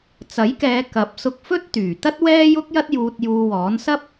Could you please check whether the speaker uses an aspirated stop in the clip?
no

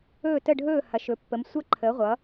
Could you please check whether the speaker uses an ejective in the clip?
no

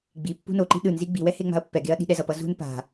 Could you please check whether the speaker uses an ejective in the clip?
no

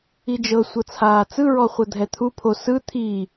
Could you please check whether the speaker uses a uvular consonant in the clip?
yes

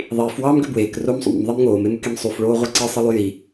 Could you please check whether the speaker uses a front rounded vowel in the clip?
yes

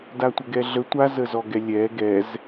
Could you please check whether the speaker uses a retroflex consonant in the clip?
no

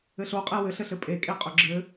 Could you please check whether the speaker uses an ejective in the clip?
yes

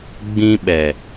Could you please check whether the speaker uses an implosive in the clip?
yes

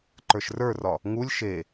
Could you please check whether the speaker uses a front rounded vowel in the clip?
no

